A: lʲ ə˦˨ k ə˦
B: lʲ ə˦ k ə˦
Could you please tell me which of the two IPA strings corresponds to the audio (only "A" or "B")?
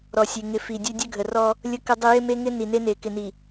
B